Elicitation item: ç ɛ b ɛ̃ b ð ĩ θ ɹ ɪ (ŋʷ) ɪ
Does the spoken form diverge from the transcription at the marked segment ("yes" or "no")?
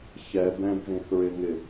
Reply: yes